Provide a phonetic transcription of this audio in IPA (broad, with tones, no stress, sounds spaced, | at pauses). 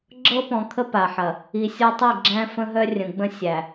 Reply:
ɡ͡ǁ ɤ˦ p ɔ̃˨ kʰ ə˦ p a˨ ħ ɐ˨ | i˨ sʲ ɔ˦ tˤ i˦˨ ɡ͡ǁ æ̃˦ f ə̃˦ ɦ œ˦ rʲ ə̃˨ ɡ͡b ə̃˦ sʲ æ˨